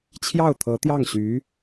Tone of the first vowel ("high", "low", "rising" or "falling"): falling